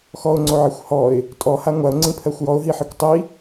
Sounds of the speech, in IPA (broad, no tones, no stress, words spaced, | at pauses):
xɔʊ̯ŋ͡ǀoʕixʷ hɔɪ̯ | tʼɔha ŋʷaʊ̯ŋ͡ǀĩpʰɜxʷ jɔʊ̯ɦiħikʷ tˤi